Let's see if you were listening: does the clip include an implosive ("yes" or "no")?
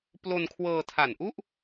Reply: no